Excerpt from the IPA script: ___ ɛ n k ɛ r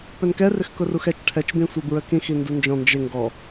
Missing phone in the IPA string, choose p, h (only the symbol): p